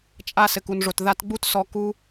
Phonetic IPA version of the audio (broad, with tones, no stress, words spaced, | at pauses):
t͡ʃʼa˧ sɘ˨ku˨nʐo˨t ða˧tɡ͡bu˦t sɔ˧ku˦